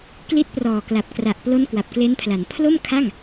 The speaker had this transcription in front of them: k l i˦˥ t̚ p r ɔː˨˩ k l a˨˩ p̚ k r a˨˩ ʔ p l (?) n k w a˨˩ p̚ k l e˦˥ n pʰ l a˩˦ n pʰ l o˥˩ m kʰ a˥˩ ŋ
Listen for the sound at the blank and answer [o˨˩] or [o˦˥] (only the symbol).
o˦˥